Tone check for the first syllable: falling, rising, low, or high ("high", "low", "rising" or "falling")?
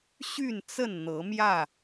falling